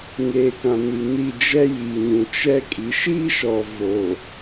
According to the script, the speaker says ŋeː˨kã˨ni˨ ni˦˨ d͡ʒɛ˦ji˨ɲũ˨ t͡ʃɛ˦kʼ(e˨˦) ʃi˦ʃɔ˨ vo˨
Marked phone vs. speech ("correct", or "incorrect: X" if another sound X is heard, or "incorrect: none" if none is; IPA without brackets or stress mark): incorrect: i˨˦